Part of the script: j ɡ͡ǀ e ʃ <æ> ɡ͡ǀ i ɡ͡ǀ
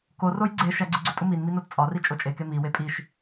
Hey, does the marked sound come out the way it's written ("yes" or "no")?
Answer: yes